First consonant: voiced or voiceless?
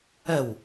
voiced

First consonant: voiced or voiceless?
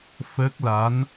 voiceless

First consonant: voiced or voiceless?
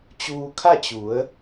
voiceless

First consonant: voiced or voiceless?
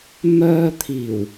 voiced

